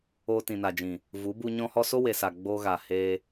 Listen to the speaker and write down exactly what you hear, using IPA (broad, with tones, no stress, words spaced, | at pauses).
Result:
oː˧tĩ˨na˨d͡ʒĩ˨ | vu˨˦bu˧ ɲɔ̃˧hɔ˧ so˦we˨sa˨ ɡ͡boː˧ɣaː˨ heː˧